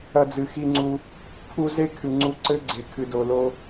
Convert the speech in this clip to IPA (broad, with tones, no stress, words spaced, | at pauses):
ɐ˧d͡zɨ˨xi˧ŋ͡ǀu˧ | pʰu˧ ze˦kʰɨ˨ŋ͡ǀu˧ ǀɘ˦ɡ͡ǀe˨ kʰɨ˨do˨lo˧